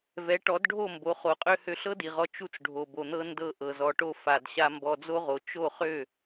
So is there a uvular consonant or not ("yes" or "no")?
yes